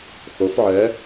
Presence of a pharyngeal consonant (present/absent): present